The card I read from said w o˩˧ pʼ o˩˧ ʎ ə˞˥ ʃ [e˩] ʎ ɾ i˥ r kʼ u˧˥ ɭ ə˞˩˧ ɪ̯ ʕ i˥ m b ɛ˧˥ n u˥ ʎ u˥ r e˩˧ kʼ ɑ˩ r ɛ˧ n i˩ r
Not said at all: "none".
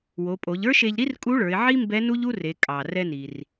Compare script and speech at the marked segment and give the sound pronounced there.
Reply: e˧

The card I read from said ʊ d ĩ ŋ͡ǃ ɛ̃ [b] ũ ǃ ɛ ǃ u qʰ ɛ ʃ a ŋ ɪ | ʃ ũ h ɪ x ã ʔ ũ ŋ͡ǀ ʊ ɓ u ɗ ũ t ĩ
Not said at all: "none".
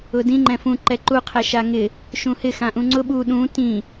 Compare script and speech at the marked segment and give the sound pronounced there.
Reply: f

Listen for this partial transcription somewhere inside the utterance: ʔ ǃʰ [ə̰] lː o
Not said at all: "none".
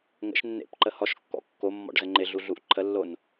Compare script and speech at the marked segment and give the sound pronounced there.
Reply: ə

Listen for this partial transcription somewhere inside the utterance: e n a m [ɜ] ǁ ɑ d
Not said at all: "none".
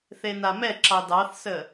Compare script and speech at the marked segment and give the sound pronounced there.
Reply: ɛ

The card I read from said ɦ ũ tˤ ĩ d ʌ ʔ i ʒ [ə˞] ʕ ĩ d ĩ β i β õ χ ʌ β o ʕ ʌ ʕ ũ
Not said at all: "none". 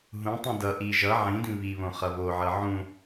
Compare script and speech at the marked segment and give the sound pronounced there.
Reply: ʌ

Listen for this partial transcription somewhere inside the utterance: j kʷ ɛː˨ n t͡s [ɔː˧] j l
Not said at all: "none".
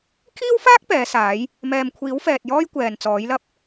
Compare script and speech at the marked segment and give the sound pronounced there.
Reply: ɔː˨˥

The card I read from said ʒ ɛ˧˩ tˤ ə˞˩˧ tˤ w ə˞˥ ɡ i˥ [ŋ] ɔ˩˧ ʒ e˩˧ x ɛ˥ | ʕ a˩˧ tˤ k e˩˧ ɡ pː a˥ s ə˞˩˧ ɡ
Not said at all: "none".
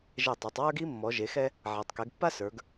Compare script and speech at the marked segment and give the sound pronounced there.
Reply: mː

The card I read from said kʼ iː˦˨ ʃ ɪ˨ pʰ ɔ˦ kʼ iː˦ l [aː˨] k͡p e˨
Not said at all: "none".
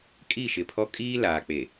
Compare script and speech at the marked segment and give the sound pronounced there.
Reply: aː˨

